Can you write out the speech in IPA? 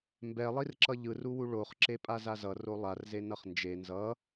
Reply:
mbɛlˠirǁʌ ʎɯruwu ɭoχǁepʼa zazʌ rolˠarze nʌχnd͡ʒe nzʌ

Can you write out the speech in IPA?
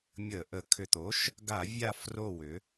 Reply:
mʲə˧˩˧ʔə˩˥ kʰʏ˩t̪o˩˥ʃ | ɡa˧˩˧ vʲa˦˨fro˦˨ wʏ˩˧

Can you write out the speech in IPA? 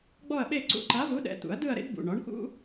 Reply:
ɡ͡bɔ˥˧ɐ̯ɓe˥˧ ǀṵ˧ǃa˨˥ vu˨˥ɗɛ̰˩˧˩t̪ṵ˨˩˦ɐ̯ dɯ˥˧ɐ̯ ɾḛ˥dbṵ˩˧˩ ɳɔ˨˥ɳkṵ˥

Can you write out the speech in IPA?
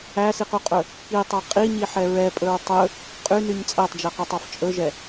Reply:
æsiqyqʼɵ | kitˤɑ qʼiɲiħɛ ɹɛpʼɵɹ tˤɵ | qʼynyɲ t͡sʼætˤd͡ʒɛqɵtˤɑf t͡ʃʼɵʒɛ

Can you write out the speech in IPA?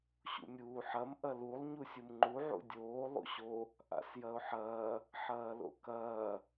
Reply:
ɕṵmʲuːħɐm ʔɐlulˠ ɲusʲumŋ͡ǃu ʕṵdʲoː lˠṵɕo | ʔa̰sjɐʊ̯ħɐː | ħɐːlo̰kɐː

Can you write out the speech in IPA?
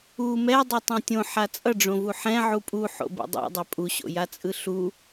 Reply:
u mɛdˤotˤõ tʲõħa t͡sʼʌɖ͡ʐõvu ħɛ̃ʕu pʼuħo̰bḛ dˤo̰dˤɛ pʼuɕo̰jat͡sʼɯ ɬu

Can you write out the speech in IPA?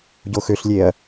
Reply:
ɟoxøɬlʲeɐ̯

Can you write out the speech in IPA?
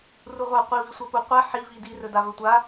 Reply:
ruʁʷa qʷi visʷapu qʷɛ ħi vidi rɵdavɵtʷa

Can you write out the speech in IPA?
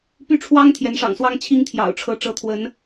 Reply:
py˥˩ʈ͡ʂʰwɑ˥ŋ t̪ʰjɛ˧˥nʂɑ̰˨˩ŋswɑ˥ŋ t͡ɕʰi˥ŋt̪ʰjɑ̰˨˩ʊ̯ ʈ͡ʂʰɤ˧˥ ʈ͡ʂɤ˧˥t̪ʰwə˧˥n

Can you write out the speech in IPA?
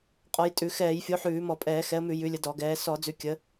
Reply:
qʼɔ˨˦jtʼʉ˧˩˧ xɛː˧˩˧j fʲo˨˦ħʉː˧˩˧mɔ˧˩˧pʼɛː˧˩˧ xɛ˨˦ə̯mʉ˧˩˧ jʉ˨˦lʲə˨˦dɔ˧˩˧ɡɛː˨˦ sɔ˧˩˧ d͡zʉ˨˦kʲə˨˦

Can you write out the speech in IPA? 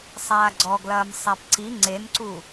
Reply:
sˤaːɡ͡ǀɔɡlɐːm sˤapǀi ŋ͡ǀenǀu

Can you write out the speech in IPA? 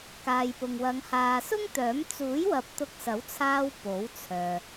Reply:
kaː˨jpʊ˨ŋwɐ˨˧ŋ haː˨sʊ˥ŋt̪œː˨˥m t͡suː˨˥jwɐ˨˥p̚ t̪ʊ˧k̚sɐ˨˥wt͡sʰaː˧w po˨˥wt͡sʰœː˨

